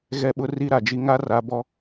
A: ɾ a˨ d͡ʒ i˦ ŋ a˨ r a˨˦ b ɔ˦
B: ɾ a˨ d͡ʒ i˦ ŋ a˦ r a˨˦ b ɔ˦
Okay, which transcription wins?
B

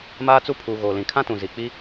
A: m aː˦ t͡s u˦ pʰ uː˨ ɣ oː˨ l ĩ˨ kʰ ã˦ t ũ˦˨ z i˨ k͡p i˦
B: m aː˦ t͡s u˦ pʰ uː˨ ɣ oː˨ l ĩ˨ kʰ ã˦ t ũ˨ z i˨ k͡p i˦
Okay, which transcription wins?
B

